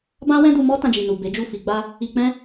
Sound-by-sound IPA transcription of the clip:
b ã˦ w ɛ̃˦ d u˧ m ɔ˦ t ã˧ d͡ʒ i˨ n u˨ b e˨˦ d͡ʒ u˦˨ f i˨ ɡ͡b a˧ | i˧ k͡p ɛ̃˦

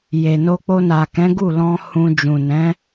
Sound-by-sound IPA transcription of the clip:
j e˨ n o˧ k͡p o˧ n a˨ k ɛ̃˨˦ ɡ u˦˨ l ɔ̃˧ h ũ˧ d͡ʒ ũ˨ n ɛ̃˨˦

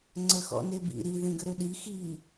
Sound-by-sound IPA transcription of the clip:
ŋ͡ǀ ə x ɔ̰ n e b ḭ ɾ i ð ĩ ɡ ə ɾ ø ɗ i x i

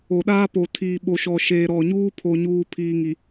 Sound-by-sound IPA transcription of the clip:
o˨ ɗ aː˦ p o˨ tʰ iː˨ ɓ o˨ ʃ ɔ˨ ʃ eː˨ ɾ ɔ˨ ɲ uː˦ pʰ o˨ ɲ uː˨ pʰ iː˨ ŋ i˨

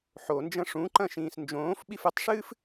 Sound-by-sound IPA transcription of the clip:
ħ o n d͡ʒ ɐ̃ ʂ ũ ǃ ɐ̃ ʃ ĩː s n d͡ʒ õː f ɓ i f ɨ tˤ ʂ ɨː f

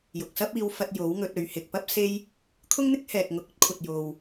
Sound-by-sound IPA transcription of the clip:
j ʊ˨ k̚ s ɐ˥ p̚ iː˧ w f ɐ˧ t̚ j o˨˥ w ŋ ɵ˧ t̚ ɵ˨˧ ɥ h ɪ˨ k̚ p ɐ˥ p̚ s e˥ j | kʰ ʊ˥ ŋ n̪ ɪ˥ k̚ h ɛː˨ k̚ ŋ ʊ˨˥ k̚ ɵ˥ t̚ kʷʰ ɐ˨ t̚ j o˨ w

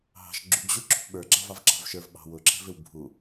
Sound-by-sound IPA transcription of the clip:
ɦ ɑ̤ ʃ ɡ͡ǁ u ɡ ʑ u ǁ ṳ p ɓ ə˞ ɡ͡ǁ ɑ v ɑ v ǁ ɑ̤ v ʃ ə˞ v ɓ ɑ̤ w ʊ ǁʰ ɛ̤ v ɪ w bʱ u

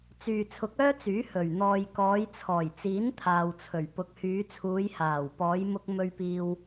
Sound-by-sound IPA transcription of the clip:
t͡s yː˨ t͡sʰ ʊ˨˥ k̚ œː˥ t͡s yː˨˥ h ɵ˨˩ ɥ n̪ ɔː˨ j k ɔː˨˧ j t͡sʰ ɔː˨˩ j t͡s iː˨˥ n t̪ʰ aː˨ w t͡sʰ ɵ˨˩ ɥ p ʊ˨ k̚ h yː˨˧ t͡sʰ uː˨˧ j h aː˨˩ w p ɔː˨˧ j m ʊ˧ k̚ m ɵ˧ ɥ p iː˧ w

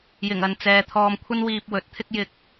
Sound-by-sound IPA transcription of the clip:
j ɪ˨˩ ŋ ɐ˨ n t͡s ɛː˨ t̪ʰ ɔː˧ m kʷʰ ɐ˥ n w iː˧ p̚ w ɵ˨˥ t̚ t̪ʰ ɪ˥ k̚ j ɪ˧ k̚

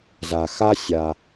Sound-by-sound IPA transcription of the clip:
z a˩ x a˦ sʲ a˩

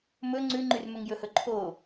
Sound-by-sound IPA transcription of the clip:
m ɵ ŋ͡ǀ ʉ ŋ͡ǃ y r m ɵ ŋ j ɵ h ɵ ǃʰ o

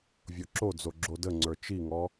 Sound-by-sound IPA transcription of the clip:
vʲ o ǁ o d͡z o ɡ͡ǁ o d ə ŋ͡ǀ ə˞ t͡ʃ i ŋ ɔ

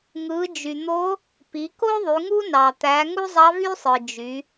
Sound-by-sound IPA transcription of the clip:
ŋ ɯ˩˧ d͡ʒ y˩ n̪ o˧˥ | p i˩˧ k o˥ ðˤ y˩˧ ŋ u˥ n ɑ˩ t̪ æ˩˧ ŋ u˥ zˤ ɑ˧˥ v y˥ sˤ ɯ˩ d͡ʒ y˩˧

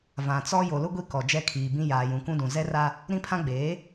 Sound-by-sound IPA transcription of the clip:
v ã˨ t͡s ɔ˦ j o˨ l ʊ˦ ɡʷ i˦ k ɔ˨ d͡ʒ ɛ˦ kʰ iː˨ b ĩ˦ j aː˨ j ũ˨ k ũ˦ d ũ˨ z ɛ˦ r a˦ | ɾ ĩ˦ pʰ ã˦ ɡ͡b eː˨˦

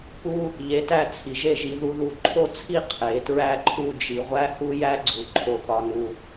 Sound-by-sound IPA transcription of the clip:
p u˥ | ʎ e˧ t æ˥˧ t͡sʰ i˩˧ ʒ e˥˧ ʒ i˧ ð u˧ ð u˧˩ ǃʰ o˥˧ t͡sʰ i˥˧ qʰ e˩˧ t ɹ æ˥˧ ǃʰ u˥˧ d͡ʒ i˧ ʁʷ æ˥ h u˥ j æ˥ ɡ͡ǀ u˩˧ ǃʰ o˧ k ɒ˧ n u˧

